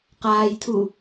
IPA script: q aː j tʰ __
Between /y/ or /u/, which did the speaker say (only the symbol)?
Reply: u